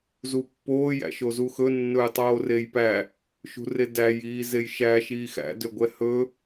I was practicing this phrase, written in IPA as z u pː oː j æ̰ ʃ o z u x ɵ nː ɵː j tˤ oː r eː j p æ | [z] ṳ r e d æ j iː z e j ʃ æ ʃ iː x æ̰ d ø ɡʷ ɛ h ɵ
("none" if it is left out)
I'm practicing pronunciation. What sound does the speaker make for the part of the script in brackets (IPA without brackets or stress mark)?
ʃ